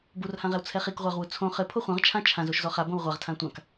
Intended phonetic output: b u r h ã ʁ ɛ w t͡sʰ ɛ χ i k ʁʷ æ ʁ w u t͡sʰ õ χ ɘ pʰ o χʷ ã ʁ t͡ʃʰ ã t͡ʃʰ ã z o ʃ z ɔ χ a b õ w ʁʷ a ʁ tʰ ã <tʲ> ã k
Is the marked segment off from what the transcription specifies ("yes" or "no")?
yes